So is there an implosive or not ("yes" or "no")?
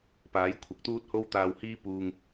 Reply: no